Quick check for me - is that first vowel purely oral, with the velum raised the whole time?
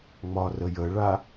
yes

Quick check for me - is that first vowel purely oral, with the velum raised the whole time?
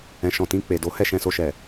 no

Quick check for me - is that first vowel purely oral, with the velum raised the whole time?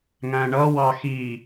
no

